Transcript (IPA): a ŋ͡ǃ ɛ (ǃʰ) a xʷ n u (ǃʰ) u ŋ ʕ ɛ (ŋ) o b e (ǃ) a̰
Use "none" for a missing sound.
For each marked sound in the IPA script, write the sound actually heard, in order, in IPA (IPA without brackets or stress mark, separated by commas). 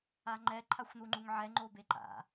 ǃʰ, ŋ͡ǃ, ŋ͡ǃ, ǃ